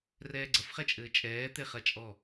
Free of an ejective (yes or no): no